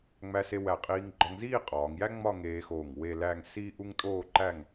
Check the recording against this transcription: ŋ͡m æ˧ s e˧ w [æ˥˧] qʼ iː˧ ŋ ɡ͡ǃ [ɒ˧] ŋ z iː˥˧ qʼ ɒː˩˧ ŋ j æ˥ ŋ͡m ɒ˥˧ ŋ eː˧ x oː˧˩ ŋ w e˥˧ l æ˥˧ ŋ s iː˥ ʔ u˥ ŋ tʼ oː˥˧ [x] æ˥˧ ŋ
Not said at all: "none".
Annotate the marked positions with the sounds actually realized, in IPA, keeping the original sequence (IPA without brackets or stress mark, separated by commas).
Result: æ˧˩, ɒ˧, ǃ